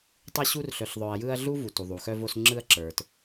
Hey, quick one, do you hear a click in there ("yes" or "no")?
yes